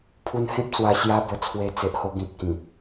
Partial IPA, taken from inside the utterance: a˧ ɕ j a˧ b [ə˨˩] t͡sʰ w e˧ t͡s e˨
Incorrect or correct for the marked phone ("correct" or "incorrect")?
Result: correct